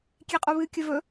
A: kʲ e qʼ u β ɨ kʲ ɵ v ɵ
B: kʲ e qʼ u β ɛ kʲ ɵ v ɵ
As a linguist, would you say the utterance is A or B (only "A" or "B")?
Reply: A